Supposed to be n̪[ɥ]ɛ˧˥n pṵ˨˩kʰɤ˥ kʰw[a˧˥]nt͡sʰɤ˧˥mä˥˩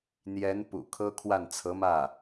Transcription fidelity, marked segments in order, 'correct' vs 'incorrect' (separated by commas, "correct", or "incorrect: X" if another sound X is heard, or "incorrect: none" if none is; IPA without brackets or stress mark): incorrect: j, incorrect: a˥˩